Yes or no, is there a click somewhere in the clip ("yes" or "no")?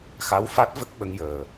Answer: no